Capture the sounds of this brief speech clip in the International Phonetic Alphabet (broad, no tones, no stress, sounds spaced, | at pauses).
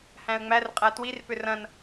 h æ̃ ə̯ ŋ͡m æ r qʼ æ t w i r p ʏ r ɐ̃ n